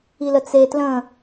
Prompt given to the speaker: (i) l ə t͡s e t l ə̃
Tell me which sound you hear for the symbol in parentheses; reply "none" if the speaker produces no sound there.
i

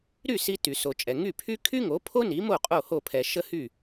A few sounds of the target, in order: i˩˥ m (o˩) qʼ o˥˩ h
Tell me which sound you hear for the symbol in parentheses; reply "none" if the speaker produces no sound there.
o˥˩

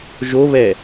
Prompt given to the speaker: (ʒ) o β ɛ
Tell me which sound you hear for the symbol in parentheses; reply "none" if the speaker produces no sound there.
ʒ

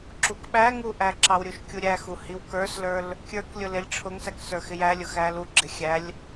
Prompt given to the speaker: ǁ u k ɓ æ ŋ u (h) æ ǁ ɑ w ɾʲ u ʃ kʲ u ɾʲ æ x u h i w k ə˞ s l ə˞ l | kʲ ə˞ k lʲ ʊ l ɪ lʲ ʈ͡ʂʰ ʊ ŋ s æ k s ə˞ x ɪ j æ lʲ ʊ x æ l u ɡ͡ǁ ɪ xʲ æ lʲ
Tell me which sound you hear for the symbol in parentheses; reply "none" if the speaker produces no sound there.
ʔ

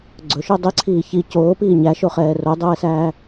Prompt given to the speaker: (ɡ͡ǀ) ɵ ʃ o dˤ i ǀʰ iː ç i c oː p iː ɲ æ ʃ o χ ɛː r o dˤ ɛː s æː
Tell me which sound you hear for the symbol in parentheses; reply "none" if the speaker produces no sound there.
ɡ͡ǀ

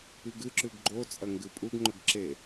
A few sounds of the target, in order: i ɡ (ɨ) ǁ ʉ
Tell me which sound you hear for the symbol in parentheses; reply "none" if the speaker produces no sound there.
ɨ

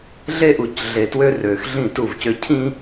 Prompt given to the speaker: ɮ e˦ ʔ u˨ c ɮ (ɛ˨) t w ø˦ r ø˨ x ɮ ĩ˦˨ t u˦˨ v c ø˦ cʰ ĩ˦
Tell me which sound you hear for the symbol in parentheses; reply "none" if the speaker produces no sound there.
e˨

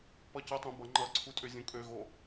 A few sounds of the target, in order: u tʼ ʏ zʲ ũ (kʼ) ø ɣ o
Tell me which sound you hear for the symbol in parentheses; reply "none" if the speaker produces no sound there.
kʼ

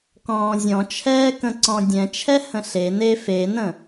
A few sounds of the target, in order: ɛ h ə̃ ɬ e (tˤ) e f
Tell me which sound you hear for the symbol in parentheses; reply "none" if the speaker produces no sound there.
n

